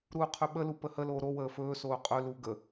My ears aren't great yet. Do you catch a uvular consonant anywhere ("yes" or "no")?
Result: yes